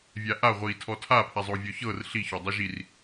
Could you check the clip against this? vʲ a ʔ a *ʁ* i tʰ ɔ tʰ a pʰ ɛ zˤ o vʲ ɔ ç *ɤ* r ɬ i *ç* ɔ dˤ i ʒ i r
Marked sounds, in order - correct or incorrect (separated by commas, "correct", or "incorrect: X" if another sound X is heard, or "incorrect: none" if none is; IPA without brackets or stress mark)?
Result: incorrect: ʁʷ, correct, correct